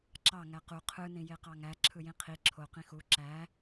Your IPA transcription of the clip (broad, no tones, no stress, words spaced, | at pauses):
ǁɑ ŋæqu qʰɯnĩ jeqɑŋæ ǁʰɯjĩqʰi ǁʰoqĩ xu ǁæ